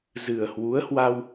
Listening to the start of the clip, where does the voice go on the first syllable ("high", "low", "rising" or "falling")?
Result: low